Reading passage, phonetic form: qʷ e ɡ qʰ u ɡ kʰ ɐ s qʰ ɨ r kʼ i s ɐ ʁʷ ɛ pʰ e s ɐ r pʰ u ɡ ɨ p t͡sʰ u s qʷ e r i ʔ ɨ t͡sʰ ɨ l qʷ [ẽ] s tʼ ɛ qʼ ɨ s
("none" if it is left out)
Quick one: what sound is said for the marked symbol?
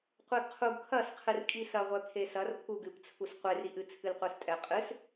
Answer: e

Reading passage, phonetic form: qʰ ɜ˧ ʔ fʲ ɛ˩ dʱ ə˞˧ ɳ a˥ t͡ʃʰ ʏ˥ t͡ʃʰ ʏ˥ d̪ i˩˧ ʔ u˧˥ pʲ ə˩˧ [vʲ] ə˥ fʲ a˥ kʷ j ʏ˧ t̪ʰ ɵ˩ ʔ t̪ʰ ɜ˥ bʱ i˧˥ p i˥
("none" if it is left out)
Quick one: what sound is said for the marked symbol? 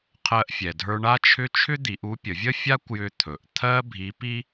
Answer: vʲ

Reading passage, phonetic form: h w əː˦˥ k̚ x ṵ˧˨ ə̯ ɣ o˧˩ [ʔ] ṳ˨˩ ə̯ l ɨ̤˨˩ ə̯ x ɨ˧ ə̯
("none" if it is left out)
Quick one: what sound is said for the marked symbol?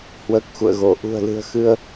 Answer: ʔ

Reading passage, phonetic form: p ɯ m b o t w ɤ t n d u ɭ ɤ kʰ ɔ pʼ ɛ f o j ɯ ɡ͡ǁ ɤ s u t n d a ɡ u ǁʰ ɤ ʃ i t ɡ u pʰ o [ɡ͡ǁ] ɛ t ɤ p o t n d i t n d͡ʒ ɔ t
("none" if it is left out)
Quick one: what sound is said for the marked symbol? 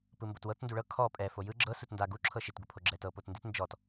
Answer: ɡ͡ǁ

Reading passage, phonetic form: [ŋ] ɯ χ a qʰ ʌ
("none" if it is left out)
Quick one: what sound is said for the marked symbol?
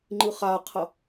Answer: ŋ͡ǃ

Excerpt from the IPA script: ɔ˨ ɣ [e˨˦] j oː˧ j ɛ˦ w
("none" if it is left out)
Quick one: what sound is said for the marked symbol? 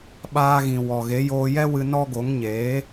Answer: e˨˦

